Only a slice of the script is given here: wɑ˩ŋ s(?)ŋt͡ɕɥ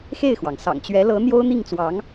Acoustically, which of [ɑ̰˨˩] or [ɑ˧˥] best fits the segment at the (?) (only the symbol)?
ɑ̰˨˩